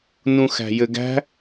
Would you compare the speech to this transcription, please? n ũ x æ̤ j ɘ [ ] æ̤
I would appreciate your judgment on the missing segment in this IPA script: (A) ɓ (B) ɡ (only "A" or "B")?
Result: B